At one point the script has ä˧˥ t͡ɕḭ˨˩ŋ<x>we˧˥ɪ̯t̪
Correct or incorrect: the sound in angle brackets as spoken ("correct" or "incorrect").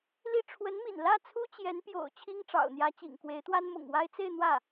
incorrect